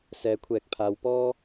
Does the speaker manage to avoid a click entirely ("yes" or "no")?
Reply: yes